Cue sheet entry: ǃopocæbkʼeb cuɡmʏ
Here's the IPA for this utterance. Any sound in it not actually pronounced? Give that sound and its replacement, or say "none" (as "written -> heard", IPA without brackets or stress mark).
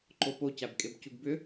m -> b